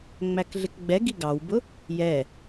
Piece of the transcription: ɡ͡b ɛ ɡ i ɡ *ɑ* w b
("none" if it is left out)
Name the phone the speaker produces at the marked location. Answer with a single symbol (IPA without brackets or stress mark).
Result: ɑ